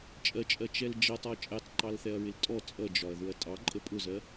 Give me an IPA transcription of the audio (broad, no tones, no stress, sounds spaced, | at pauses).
t͡ʃʼ ɜ t͡ʃʼ ɜ t͡ʃ ɛ l d͡ʒ ʌ tˤ ɔ t͡ʃʼ ɛ tˤ ǃ ɑ l θ ɛ ɐ̯ ɹ ɪ l tʼ ɔ t͡sʼ ʌ d͡ʒ ɒ ɐ̯ ð ʊ ɐ̯ tʼ ɑ ǃʼ ə pʼ ʊ z ɜ